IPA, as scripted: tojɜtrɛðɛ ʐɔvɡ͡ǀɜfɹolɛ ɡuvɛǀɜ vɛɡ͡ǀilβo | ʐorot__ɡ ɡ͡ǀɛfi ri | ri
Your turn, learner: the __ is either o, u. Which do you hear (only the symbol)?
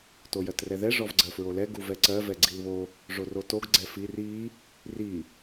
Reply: o